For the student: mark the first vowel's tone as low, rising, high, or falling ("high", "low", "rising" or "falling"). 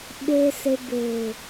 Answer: low